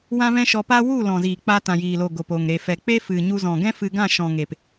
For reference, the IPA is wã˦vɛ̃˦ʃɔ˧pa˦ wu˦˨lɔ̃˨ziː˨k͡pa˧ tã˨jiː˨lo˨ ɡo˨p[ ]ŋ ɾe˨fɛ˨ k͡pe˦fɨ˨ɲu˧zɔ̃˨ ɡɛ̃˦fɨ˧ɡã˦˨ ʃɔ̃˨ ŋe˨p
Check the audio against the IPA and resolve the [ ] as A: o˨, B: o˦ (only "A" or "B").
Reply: A